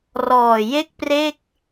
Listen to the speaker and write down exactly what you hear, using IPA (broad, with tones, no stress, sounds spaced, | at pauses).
r ɔː˨˩ j e˥˩ k̚ p r e˥˩ k̚